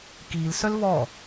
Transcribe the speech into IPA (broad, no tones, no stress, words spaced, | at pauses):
kiːlsœl vɔ